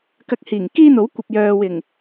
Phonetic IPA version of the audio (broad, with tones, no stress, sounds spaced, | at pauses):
k ɐ˧ k̚ h iː˨˩ ŋ k iː˥ n̪ o˨˥ w kʷ ɐ˨ p̚ j œː˨ w ɪ˨˩ ŋ